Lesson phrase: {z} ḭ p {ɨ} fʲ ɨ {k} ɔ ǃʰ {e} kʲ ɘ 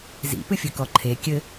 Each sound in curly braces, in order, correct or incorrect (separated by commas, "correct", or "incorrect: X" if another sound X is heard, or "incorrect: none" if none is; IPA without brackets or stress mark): correct, correct, correct, correct